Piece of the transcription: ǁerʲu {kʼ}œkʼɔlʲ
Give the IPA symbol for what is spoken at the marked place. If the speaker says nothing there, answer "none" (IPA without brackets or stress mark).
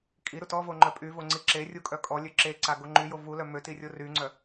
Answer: kʼ